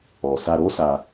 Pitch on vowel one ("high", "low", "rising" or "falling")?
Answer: low